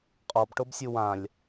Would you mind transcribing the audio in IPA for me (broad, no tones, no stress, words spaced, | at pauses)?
qʼɔb ʈobsʲuwãlʲ